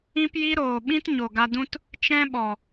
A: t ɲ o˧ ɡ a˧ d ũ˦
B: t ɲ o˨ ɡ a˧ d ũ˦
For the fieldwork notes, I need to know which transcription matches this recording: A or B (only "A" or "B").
B